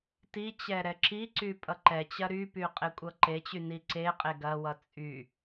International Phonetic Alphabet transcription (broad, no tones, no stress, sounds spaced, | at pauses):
t i t͡ɕ ɛ ɾ ɛ ǁ i ǀ y pʼ ʌ ǃ ɛ t͡ɕ ɐ ɾ y p y qʼ e kʷʼ ʌ ǃ e t͡ɕ y n i ǀ e qʼ e ɡ ɐ w ʌ t͡sʼ y